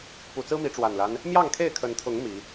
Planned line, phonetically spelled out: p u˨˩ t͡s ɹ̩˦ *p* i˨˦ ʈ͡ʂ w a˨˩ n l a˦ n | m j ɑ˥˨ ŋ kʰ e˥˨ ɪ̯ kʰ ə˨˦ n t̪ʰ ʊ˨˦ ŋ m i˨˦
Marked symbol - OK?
no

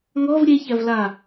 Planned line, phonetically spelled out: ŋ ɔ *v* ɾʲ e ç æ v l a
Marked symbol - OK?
yes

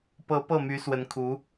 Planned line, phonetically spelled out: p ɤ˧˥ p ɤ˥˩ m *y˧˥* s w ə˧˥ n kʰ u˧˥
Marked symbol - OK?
yes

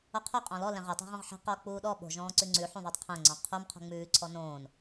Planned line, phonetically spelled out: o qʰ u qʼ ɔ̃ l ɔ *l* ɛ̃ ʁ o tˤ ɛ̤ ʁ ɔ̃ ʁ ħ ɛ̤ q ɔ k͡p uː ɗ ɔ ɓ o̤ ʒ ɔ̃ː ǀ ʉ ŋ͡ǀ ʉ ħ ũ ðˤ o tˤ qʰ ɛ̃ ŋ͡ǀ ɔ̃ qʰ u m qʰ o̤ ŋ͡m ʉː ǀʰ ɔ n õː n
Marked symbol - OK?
yes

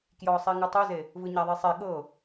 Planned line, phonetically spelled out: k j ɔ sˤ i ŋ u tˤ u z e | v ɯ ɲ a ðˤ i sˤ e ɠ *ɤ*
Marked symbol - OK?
yes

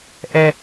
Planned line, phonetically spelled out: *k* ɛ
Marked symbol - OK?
no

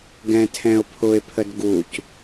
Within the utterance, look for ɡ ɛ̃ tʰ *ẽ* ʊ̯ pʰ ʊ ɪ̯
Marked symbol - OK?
no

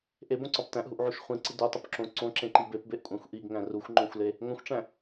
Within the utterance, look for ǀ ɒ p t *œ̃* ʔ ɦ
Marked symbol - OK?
no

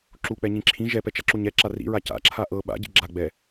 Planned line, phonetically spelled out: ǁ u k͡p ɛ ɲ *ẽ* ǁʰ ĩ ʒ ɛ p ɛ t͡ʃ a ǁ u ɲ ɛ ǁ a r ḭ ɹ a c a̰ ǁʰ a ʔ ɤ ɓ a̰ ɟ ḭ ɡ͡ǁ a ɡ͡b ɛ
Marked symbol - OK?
no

